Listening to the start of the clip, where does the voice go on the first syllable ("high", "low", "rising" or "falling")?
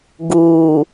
low